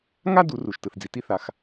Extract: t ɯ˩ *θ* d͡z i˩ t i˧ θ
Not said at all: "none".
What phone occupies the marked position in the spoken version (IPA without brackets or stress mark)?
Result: θ